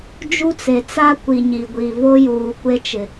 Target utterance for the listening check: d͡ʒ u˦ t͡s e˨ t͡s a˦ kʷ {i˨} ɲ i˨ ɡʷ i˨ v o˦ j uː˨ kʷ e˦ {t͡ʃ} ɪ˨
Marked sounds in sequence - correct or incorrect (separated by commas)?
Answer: correct, correct